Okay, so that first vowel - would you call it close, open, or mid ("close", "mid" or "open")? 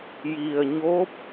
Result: close